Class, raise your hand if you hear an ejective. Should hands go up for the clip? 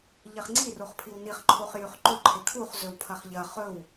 no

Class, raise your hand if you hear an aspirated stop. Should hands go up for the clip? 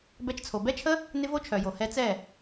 yes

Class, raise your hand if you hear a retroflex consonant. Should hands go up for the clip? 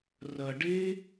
yes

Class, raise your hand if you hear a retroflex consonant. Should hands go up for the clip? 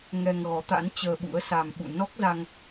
no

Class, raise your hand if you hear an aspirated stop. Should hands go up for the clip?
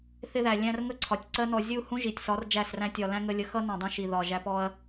yes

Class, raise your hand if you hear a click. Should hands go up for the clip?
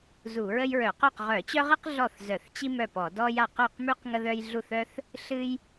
no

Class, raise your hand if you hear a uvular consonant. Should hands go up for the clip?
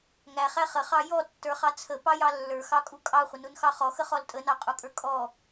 yes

